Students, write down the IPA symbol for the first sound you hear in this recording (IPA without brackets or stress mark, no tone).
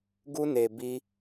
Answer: ɡ